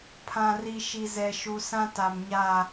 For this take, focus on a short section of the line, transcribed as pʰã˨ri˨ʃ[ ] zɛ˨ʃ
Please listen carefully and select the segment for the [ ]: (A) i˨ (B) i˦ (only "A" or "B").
A